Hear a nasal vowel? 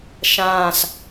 yes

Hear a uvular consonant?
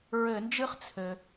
yes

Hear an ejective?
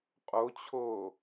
yes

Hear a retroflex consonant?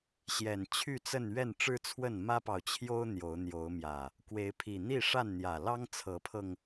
yes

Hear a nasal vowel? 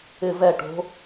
no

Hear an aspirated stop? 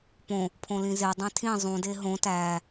yes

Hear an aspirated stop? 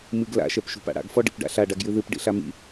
no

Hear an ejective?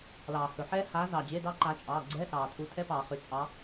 yes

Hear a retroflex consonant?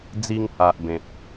no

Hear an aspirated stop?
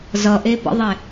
no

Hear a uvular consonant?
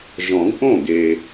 no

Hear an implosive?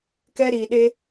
yes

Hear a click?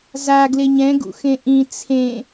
no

